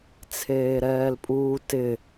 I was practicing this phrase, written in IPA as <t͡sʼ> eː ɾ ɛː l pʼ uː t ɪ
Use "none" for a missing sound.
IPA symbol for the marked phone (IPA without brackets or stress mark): t͡sʰ